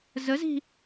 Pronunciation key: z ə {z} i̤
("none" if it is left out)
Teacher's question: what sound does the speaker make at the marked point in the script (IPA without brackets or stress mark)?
z